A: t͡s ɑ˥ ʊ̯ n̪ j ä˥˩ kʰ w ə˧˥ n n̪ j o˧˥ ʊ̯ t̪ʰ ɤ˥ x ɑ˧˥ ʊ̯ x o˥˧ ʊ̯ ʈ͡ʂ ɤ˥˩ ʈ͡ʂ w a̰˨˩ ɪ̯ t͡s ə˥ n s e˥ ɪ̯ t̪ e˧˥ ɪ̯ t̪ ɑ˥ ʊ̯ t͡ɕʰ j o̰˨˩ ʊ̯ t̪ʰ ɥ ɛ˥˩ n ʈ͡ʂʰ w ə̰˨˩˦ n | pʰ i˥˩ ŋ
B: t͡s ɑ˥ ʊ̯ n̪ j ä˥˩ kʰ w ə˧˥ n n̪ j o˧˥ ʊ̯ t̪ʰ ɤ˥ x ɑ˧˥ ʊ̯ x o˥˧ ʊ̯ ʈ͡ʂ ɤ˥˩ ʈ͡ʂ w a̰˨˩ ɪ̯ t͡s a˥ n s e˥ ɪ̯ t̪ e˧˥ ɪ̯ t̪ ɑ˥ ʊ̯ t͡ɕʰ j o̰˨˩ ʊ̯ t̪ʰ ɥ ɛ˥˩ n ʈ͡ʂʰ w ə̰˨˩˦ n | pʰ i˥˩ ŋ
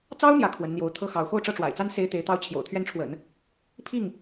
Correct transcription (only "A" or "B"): B